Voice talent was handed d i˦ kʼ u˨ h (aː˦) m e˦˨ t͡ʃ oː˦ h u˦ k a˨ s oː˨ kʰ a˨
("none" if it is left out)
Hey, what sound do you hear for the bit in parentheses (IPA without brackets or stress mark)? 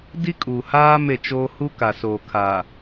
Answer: aː˦